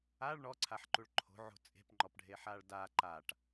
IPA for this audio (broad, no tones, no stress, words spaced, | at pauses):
aɭ ɳɔǀʰaħǃuɭ ǃʰo̤ʕo̤ t͡sʼe̤pŋ͡ǃɔpɖʱeħaɭ da ǃaʈ